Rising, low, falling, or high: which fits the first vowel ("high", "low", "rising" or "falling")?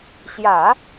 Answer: low